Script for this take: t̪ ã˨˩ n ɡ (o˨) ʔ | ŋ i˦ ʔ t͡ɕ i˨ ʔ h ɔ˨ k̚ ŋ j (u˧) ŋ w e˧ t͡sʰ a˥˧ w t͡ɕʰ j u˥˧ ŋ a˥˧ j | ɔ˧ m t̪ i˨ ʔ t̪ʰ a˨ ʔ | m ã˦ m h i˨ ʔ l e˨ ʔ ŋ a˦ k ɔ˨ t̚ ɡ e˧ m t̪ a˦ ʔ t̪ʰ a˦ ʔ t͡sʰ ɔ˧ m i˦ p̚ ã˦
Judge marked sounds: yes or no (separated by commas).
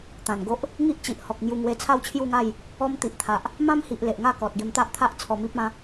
no, yes